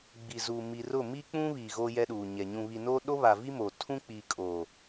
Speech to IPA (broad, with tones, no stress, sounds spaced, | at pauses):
ɡ͡b i˨ z uː˨ m i˨ r ʊ˦˨ m i˦ k͡p ũ˦ β i˨ ɣ o˦ j ɛ˦ ɗ uː˨ ɲ ɛ˨ ɲ ũ˨ β i˨ n oː˦ ɗ o˦ β a˨ v i˦ m oː˨ tʰ ũ˦ k͡p iː˨ kʼ o˨